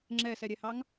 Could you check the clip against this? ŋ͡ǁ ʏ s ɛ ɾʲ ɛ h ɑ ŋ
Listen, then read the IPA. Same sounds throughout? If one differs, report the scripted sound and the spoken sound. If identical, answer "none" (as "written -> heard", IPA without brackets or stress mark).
ʏ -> ɛ